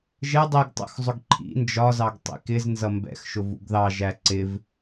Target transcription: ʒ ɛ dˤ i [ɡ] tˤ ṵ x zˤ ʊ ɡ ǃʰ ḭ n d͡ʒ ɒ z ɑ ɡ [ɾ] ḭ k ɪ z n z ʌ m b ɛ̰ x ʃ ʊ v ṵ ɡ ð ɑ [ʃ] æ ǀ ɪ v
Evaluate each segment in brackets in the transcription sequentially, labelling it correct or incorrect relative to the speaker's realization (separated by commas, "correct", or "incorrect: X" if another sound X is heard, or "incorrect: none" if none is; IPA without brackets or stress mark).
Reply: correct, incorrect: tˤ, incorrect: ʒ